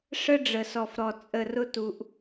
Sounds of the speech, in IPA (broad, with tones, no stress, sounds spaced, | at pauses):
ʂ ə˦ ɖ͡ʐ ə˨ s ɔ˨ f ɾ ɔ˨ t͡sʼ ə˨ r ʊ˦ t u˦ ʔ